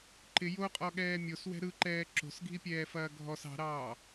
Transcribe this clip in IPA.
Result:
ǃ ɪ j o qʼ ɔ ɠ ɛː mʲ o s w ɛ̤ ɾ ɯ ǃ ɛː ǁ o̤ s ɡʱ i pʲ ɛː f ɐː ɡʱ ɔ s ɑ̤ ɾ ɑː

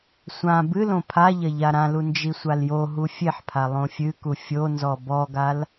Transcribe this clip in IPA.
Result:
sʷ ã b ɨ l õ pʰ a ʎ ɐ ʎ a ɾ ã l u n d͡ʒ i sʷ a l j o ɦ u fʲ e ħ pʰ a lˠ õ fʲ ɨ k u fʲ o n z ɔ b ɔ ɡ a l

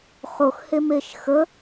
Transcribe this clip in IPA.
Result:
χ o x h e m e ʃ x ə

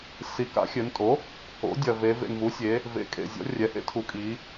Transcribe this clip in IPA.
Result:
s i˨˩ k a̰˩˥ xʲ ɘ˩˧ n tʼ o˩˥ | o̰˩˥ dʲ ɐ˨˩ v e˩˧ v ḛ˨˩ n v u˩˥ sʲ e˩˧ | v ḛ˨˩ kʼ ḛ˨˩ zʲ ɔ̰˩˥ rʲ ɛ˩˧ h ḛ˩˥ tʰ u˩˥ kʼ i˩˧

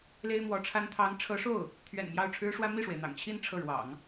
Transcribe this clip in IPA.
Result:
l e˥ ɪ̯ m w ɔ˧˥ ʈ͡ʂʰ a˥ n t̪ʰ ɑ˧˥ ŋ ʈ͡ʂʰ ɤ˧˥ ʂ o˥˩ ʊ̯ | t̪ʰ ɥ ɛ̰˨˩ n m j ɑ˥˩ ʊ̯ ʈ͡ʂʰ ɻ̩˥ ʂ w ä˥ m i˥˩ ʂ w e˩ ɪ̯ n̪ ɑ̰˨˩ ŋ t͡ɕʰ i˥˧ n ʈ͡ʂʰ ɤ˥˩ ɻ w ɑ̰˨˩˦ ŋ

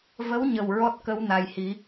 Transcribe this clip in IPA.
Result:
v ə˧˥ w ɲ ə˨˩ w ɹ ɔ˦˥ t̚ k ə˧˥ w n a˨˩ j h i˨˩˦

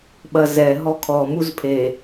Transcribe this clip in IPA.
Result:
ɓ ɐ z ɛ ɦ ɔ kʰ ɔ m u z pʰ e

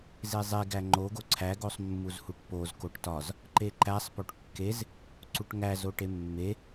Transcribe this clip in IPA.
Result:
z e zˤ e ɡ æ ŋ͡ǃ o ɡ o ǀʰ æ ɡ o sˤ mː u z h u ʈ p o z k o ʈ t ɒ z | ǃ e ǃ æ sˤ p o ʈ kː e z | ǀ u ʈ ŋ æ z o ʈ e mː e

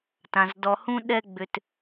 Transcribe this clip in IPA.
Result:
t ã˩ z d ɔ˨ h ũ˥ ɗ ɛ˦ ɡ͡b ʏ˨ t

